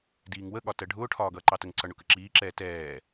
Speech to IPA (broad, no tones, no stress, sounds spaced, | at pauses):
d iː ŋ w ə ɠ ɒ t ɜ ɖʱ ʊː ʈʰ ɒː ɡ ʌː ǃ ɑ t ə ŋ ǀ ʌ ɳ ʊ k ə ǁ iː ǁ ɛː t ɛː